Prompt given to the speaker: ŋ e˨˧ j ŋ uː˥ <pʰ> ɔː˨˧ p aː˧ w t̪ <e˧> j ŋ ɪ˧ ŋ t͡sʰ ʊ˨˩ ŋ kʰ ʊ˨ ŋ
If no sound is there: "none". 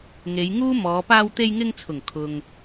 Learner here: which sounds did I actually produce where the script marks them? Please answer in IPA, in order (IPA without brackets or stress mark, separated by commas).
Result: m, e˧